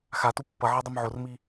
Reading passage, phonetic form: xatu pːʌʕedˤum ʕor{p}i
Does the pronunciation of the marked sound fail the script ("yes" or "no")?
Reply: yes